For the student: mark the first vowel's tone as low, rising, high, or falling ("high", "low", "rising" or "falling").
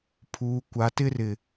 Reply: low